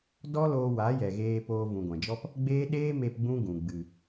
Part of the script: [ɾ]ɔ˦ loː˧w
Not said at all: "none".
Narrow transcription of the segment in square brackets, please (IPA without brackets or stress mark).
d